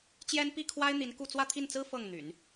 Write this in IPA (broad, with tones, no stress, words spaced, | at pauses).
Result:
t͡ɕjɛ˥n pi˥˩kʰwa˥ɪ̯ n̪i˧˥nku˥˧ t͡swä˥˧t̪ʰi˥˩nt͡sɹ̩˥ fɤ˥˩ŋn̪y̰˨˩˦n